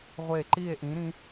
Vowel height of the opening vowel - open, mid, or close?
mid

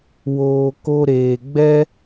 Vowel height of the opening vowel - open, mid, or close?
mid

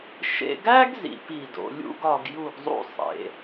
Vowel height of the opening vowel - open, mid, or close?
mid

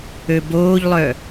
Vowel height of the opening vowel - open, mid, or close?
mid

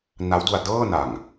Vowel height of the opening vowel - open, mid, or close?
open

